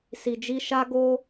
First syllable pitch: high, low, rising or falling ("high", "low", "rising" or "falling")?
low